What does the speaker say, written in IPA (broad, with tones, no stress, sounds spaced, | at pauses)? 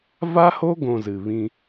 v a˦ h o˦ ɡ õ˧ z ɨ˨ β ĩ˧